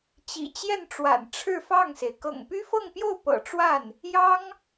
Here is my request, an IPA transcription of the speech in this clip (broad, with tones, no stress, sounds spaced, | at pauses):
t͡ɕ ḭ˨˩ t͡ɕ j ɛ˥˩ n ʈ͡ʂ w a̰˨˩ n ʈ͡ʂʰ ɻ̩˥˧ f ɑ˥˩ ŋ s e˩ ɪ̯ k ɤ̰˨˩ ŋ p y˥ f ɤ˥˧ ŋ p j o˥˩ ʊ̯ p ɤ̰˨˩ ʈ͡ʂ w a˥˩ n | j ɑ˥ ŋ